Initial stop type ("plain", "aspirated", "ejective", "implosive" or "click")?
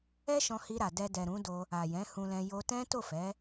plain